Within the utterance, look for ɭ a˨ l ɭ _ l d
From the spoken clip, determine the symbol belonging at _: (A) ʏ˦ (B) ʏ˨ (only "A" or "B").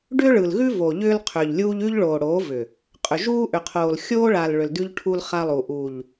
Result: B